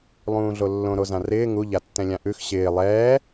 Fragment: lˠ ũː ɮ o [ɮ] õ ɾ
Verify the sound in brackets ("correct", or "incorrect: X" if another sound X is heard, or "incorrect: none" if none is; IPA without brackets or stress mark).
incorrect: lː